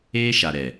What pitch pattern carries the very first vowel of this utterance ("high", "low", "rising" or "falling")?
high